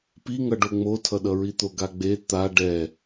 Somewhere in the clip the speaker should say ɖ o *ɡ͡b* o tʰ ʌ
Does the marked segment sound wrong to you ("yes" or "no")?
yes